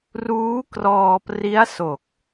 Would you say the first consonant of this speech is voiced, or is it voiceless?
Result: voiced